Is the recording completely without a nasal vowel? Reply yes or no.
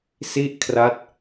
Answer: yes